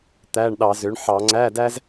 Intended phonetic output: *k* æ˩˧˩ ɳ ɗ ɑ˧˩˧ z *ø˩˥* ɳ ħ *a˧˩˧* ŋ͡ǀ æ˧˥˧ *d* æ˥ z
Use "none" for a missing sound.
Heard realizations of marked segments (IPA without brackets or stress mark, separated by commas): t̪, ø˩˥, ɑ˧˩˧, d